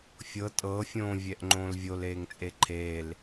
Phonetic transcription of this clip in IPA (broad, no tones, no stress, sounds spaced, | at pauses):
fʲ ɤ tʼ ɤ fʲ õː vʲ ɛ ʔ ŋ͡ǃ õː l vʲ o l eː ŋ t͡sʼ e ǃʰ eː l